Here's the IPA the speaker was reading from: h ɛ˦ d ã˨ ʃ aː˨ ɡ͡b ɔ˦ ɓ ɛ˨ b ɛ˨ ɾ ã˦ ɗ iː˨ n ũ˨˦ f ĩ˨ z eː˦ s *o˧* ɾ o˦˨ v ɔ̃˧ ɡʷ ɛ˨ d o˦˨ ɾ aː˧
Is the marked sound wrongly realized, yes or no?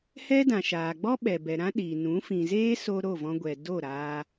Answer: no